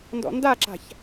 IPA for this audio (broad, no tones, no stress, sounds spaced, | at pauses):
n d ɔ̰ n d a ǁ a̤ ç